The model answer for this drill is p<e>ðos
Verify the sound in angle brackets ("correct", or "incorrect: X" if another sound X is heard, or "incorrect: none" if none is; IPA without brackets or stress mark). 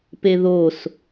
correct